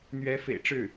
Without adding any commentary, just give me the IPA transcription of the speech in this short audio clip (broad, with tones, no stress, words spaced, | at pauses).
n̪ɥɛ˧˥fḛ˨˩ɪ̯ʈ͡ʂɻ̩˥˩